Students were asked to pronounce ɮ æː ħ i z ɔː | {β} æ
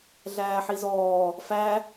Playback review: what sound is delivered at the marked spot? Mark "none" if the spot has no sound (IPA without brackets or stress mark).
f